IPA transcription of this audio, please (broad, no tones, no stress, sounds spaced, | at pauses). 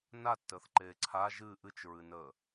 n a tː əː θ ǃ eː ǀʰ a ʒ ɨ ʔ ɨ t͡ʃ ɹ ɨ n əː